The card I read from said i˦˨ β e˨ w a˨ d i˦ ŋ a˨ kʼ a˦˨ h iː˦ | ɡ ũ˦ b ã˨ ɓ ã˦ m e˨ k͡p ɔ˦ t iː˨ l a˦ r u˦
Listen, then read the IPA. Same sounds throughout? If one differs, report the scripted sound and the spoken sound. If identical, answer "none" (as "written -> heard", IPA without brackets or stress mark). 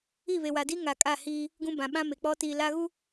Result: r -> ɣ